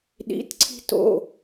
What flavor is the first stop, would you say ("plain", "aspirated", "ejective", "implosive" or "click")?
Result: implosive